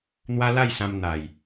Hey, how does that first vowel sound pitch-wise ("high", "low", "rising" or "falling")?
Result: high